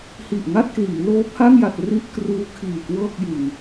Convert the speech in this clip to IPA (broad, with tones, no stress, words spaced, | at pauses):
hi˨˩ʔŋa˥˩t̚kliː˩˦ loː˦˥pʰa˥˩ŋja˨˩t̚ ri˦˥ʔ kruː˦˥kʰiː˨˩ kwɤː˥˩k̚jɯ˨˩ŋ